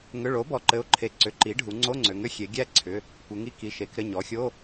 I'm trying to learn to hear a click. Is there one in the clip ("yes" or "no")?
yes